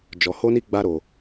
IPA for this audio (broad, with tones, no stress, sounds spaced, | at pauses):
d͡ʒ ɔ˧ h o˦ n i˦ ɡ͡b a˦ ɾ o˧